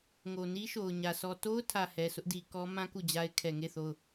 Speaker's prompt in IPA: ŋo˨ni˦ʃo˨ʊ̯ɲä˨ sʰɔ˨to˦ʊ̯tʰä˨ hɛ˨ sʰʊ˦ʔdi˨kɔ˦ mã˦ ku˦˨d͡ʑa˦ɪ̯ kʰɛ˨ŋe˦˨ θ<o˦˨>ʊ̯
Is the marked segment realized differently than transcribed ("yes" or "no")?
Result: no